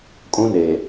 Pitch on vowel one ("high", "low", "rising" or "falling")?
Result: high